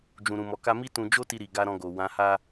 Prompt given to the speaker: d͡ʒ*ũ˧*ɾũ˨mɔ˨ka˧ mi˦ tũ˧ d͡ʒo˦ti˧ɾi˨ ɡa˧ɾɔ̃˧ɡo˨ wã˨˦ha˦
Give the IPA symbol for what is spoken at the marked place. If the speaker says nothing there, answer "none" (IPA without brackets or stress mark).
ũ˨